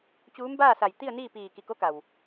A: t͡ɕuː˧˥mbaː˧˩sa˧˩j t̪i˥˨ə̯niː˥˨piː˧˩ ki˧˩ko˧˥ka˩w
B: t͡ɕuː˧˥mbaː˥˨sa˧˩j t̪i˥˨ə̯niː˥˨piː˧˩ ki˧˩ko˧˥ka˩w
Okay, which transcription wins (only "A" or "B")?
B